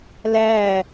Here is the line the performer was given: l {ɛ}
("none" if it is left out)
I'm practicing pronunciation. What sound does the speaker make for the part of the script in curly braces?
æ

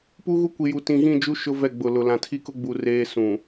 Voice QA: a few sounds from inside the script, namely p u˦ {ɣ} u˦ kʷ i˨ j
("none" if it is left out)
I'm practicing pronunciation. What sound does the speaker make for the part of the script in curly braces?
ɣ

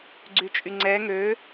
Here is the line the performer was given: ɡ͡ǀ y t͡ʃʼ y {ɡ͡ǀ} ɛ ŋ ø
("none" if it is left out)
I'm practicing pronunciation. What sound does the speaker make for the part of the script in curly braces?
ŋ͡ǀ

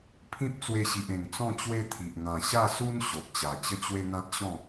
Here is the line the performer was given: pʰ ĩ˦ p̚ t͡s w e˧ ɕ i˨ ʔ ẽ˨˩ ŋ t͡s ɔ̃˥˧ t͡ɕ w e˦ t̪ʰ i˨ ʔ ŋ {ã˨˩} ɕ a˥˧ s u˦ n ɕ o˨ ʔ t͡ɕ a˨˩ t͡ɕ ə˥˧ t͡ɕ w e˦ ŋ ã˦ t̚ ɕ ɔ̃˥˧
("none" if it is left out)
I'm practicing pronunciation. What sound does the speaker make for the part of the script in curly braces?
ã˨˩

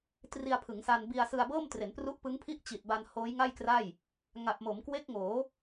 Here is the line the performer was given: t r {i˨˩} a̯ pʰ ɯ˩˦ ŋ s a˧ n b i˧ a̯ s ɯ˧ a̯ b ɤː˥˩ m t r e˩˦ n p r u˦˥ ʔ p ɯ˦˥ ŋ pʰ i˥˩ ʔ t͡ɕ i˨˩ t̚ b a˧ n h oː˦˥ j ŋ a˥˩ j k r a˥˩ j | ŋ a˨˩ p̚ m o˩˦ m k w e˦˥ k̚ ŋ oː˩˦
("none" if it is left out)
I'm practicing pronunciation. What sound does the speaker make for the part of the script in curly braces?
i˧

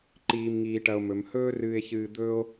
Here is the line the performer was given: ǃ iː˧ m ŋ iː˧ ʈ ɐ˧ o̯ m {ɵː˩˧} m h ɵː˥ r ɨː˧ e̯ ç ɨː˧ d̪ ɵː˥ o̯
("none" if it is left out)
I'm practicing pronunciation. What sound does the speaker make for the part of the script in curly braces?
ɵ˩˧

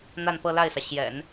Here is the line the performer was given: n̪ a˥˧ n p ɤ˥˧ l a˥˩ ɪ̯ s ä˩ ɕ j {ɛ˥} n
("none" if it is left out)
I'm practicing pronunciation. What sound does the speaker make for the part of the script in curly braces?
ɛ̰˨˩˦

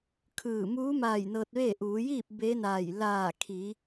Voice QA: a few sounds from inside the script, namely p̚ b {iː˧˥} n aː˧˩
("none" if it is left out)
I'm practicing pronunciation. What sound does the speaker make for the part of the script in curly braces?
eː˧˥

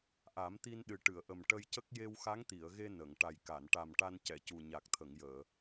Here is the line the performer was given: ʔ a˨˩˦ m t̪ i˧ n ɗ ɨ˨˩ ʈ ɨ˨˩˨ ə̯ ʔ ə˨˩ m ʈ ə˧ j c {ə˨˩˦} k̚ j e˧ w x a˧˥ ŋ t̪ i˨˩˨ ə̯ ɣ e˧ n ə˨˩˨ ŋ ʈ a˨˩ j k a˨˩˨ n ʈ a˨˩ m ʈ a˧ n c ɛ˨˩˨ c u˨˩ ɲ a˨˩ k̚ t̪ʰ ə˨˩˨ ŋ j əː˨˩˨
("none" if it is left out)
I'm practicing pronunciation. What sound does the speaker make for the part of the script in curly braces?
ə˦˥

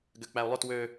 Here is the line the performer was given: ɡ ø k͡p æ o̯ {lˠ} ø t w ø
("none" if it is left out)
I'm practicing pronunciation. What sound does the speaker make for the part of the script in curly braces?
lˠ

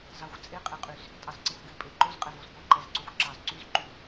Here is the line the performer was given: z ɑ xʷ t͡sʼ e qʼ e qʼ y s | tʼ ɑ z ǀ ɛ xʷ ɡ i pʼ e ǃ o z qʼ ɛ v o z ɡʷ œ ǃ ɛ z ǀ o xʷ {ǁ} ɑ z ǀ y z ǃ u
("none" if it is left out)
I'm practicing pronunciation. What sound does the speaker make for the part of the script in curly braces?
ǁ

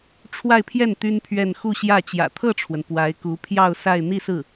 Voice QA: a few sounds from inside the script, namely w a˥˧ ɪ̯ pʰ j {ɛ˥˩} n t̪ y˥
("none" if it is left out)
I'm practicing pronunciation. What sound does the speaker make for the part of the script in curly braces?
ɛ˥˩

